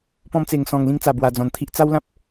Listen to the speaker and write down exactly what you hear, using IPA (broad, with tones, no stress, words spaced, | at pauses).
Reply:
pɔ̃˧mt͡se˨˩ŋ sɔ̃˨˩ŋ lĩ˦ŋt͡sa˨˩ bwa˨˩d͡zɔ̃˨˩nt̪ʰi˦ʔ t͡sa˦wlã˦p̚